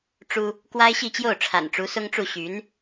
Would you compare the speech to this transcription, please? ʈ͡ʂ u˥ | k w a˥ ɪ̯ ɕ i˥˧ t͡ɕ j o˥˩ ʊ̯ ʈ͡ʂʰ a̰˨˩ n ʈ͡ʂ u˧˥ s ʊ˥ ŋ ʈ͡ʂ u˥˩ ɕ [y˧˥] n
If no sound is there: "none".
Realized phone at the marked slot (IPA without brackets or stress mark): y˧˥